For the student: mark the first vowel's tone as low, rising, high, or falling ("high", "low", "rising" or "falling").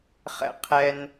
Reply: high